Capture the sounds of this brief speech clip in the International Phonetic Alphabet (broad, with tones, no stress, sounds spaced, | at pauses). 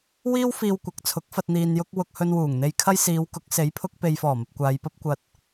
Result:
w iː˥ w f iː˧ w kʷ ɐ˨ k̚ t͡sʰ ʊ˨˥ k̚ f ɐ˧ t̚ n̪ iː˧ n j ʊ˥ k̚ w ʊ˧ k̚ h ɵ˧ n w uː˨˩ ŋ n̪ e˧ j kʰ ɐ˥ j s iː˨˧ w k ʊ˨˥ k̚ s e˨˥ j pʰ ʊ˧ k̚ p e˨ j f ɔː˨˩ m ɐ˨ p̚ kʷ aː˨˧ j p ɐ˥ p̚ kʷ ɐ˧ t̚